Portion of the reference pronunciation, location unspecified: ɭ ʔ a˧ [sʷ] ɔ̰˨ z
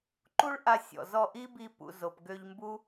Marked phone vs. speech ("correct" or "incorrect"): incorrect